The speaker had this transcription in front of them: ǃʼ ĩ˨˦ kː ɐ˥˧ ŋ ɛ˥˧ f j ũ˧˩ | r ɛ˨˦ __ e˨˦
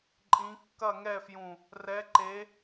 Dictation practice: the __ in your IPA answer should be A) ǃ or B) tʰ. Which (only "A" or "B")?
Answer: A